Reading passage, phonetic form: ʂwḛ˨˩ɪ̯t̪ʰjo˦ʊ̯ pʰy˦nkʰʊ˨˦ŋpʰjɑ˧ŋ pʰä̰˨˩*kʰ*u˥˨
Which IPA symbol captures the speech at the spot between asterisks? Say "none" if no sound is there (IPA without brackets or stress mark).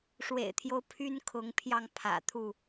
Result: t̪ʰ